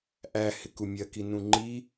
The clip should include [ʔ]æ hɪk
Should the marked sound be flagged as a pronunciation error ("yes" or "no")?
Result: no